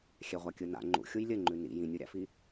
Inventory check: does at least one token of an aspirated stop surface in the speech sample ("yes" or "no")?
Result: no